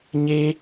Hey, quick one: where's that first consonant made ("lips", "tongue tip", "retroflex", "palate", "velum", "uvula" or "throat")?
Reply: palate